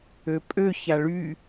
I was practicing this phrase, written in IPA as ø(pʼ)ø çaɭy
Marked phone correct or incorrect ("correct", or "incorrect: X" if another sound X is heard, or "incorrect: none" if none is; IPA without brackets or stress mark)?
correct